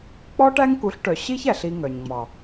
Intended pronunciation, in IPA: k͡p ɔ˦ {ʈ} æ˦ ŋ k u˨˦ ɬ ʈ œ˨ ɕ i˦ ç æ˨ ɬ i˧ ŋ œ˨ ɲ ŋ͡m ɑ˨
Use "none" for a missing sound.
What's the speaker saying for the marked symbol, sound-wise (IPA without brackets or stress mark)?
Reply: ʈ